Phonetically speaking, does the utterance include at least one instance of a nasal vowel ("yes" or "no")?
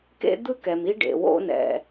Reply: no